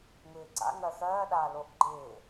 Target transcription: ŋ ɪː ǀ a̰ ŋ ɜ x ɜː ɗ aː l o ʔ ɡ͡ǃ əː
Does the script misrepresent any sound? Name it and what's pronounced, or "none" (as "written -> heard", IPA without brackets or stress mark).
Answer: əː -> ɪː